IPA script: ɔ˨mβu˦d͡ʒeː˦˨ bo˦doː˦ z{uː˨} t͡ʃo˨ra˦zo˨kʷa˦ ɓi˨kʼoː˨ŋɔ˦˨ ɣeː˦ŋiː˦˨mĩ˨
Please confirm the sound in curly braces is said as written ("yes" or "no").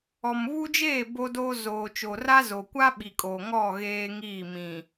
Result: no